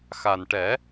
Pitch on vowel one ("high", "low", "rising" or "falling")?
low